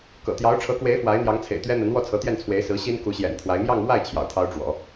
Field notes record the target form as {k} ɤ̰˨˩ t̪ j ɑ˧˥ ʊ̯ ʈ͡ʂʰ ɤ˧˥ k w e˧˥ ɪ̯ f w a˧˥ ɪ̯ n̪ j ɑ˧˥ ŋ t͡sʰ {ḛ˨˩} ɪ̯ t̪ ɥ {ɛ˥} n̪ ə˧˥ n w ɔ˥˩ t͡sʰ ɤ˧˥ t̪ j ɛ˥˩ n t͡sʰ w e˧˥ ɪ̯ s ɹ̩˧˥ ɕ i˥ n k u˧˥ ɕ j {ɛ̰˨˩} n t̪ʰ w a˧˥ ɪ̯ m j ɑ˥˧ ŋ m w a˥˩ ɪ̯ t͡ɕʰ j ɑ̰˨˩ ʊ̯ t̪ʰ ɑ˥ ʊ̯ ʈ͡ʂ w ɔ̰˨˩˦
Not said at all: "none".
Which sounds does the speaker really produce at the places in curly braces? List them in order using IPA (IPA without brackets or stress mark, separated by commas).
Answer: k, ḛ˨˩, ɛ˥, ɛ̰˨˩